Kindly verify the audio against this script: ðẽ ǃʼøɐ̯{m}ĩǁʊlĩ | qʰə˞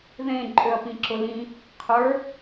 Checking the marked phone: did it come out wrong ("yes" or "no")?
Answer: yes